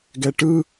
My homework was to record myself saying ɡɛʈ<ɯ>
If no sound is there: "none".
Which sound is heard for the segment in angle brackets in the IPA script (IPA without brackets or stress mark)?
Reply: ɯ